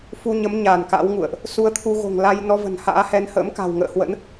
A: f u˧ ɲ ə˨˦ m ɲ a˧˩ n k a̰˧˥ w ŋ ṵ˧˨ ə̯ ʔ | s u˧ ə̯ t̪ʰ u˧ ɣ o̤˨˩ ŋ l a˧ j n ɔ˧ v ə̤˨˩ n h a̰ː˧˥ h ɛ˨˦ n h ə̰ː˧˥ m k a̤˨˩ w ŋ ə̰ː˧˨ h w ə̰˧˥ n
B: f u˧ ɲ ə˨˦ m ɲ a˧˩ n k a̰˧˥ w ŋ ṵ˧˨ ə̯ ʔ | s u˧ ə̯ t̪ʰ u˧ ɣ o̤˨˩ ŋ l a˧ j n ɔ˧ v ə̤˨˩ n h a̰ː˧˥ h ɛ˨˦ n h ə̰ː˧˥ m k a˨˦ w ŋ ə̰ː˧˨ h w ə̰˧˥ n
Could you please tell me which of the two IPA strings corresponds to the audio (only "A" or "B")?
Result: A